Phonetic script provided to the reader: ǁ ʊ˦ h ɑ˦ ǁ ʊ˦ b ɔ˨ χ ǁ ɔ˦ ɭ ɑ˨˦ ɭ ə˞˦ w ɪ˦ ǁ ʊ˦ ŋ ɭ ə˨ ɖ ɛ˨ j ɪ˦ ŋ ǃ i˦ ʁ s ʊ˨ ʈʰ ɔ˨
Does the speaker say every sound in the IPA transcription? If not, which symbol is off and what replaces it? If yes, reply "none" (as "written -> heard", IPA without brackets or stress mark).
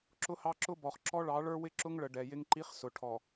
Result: ʁ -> χ